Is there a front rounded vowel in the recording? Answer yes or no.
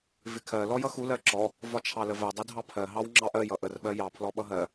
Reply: no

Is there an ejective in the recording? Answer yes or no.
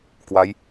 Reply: no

